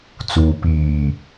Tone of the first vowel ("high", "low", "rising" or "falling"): low